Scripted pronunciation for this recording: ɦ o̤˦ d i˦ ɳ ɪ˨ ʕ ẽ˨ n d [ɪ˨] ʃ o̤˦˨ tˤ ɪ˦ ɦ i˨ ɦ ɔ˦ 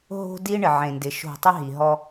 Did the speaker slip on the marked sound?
no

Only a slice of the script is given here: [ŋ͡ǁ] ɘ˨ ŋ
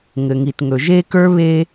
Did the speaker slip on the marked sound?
yes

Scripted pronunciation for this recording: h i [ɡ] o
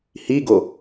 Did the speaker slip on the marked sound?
no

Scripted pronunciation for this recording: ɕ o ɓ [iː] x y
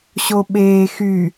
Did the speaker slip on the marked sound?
yes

